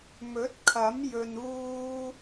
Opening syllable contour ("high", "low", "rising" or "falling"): rising